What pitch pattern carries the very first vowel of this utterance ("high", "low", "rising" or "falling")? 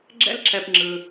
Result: high